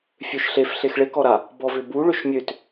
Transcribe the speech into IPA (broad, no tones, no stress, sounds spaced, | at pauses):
fʲ ø ʃ ɬ e f ɬ e x ɭ e k ɔ ɾ a | b ɔ v ʏ b u ɭ ʏ ʃ mʲ ø t